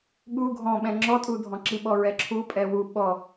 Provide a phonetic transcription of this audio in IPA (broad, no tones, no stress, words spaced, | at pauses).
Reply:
ɠu ɡʱɔ̃ɓɛ̃ ŋ͡ǁɔtʼu dʱɔ̃ǁiɓɔ ɹɛǁʰupʼɛ wu ɓɔ